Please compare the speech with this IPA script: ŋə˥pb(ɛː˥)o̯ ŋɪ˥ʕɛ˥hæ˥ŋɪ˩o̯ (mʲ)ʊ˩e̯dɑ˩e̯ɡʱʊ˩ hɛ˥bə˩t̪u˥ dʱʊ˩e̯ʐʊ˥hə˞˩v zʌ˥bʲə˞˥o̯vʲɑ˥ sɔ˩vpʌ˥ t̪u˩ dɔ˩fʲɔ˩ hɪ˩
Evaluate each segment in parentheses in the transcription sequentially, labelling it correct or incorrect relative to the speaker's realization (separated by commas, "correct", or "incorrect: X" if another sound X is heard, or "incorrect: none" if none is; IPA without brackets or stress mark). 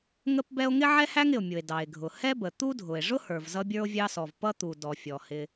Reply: incorrect: ɛ˥, correct